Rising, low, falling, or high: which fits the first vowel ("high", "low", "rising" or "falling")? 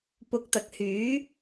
rising